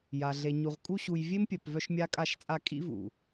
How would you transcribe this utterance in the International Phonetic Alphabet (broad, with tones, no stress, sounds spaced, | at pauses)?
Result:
j a˨ ɮ e˨ ɲ u˨ ʁ kʼ u˧ ɕ u˨ j vʲ e˦ m pʲ œ˨ p v œ˧ ʃ mʲ a˧ kʼ a˧ ʃ t͡sʼ a˧ kʼ ḭ˧ v ṵ˨